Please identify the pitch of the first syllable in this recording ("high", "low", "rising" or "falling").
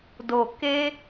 low